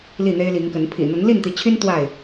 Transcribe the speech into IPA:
l i˥˨ n̪ e˦ ɪ̯ l i˨˦ ŋ k ə˨˦ n pʰ ḭ˨˩ n̪ ə˨˦ n l i˥˨ n t̪ i˨˦ t͡ɕʰ y˦ n t̪ w a˥˨ ɪ̯

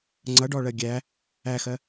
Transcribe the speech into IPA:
ŋ͡ǀ ʌ ɖ ɔ ɭ ɜ ɡʲ æ | æ x ɜ

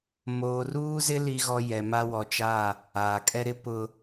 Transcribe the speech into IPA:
m oː˨ r uː˦ z ɪ˦ l i˦ ɣ ɔ˦ j ɛ˨ m a˦ w ɔ˨ t͡ʃ a˦˨ | aː˨ kʼ ɛ˦ ɾ ɪ˦ p ʊ˨

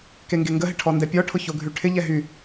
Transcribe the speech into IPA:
k e ŋ ɡ e ŋ ɡ ə ɦ ɪ ʈʰ ɔ n d ɛ pʲ ɔ ʈʰ ʊ ç o ɡʱ y ʈʰ ɪ ʎ ɛ ɦ y

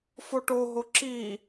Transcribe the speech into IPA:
f o ʈ o ɦ o ǁ i

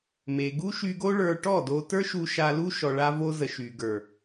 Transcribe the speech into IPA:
m e˨ ɡ u˦ ʃ y˧ ɡ o˦ ɭ ə˞˧ ʈ ɔ˦˨ d o˧ t ə˞˦ ʃ u˧ ʃ a˧ l u˦ ʃ ɔ˧ ɭ a˦ v o˦ z ə˨ ʃ y˨ ɡ ə˞˨

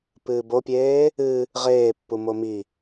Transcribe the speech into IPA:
p ɨː b o pʲ eː | ɨ | ʁ eː pː u m o m i

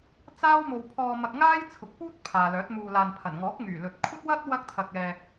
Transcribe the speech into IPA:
t͡s aː˥ w m o˧ w pʰ ɔː˧ m ɐ˧ k̚ ŋ aː˥ j t͡sʰ ʊ˨˥ k̚ p uː˥ t̚ pʰ aː˨ l œː˨˥ t̚ m uː˨ l aː˨ n pʰ ɐ˨˩ n ŋ ɔː˨˥ k̚ ŋ yː˨˩ l ɵ˨ t̚ kʷʰ ɐ˥ t̚ w ɐ˥ t̚ w ɐ˥ k̚ t̪ʰ ɐ˧ k̚ ɛː˧

